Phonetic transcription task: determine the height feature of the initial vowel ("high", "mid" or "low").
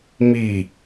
high